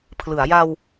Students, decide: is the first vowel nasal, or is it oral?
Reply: oral